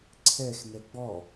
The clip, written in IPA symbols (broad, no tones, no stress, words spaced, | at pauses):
ǀʰɛx nɛɡ͡bɔ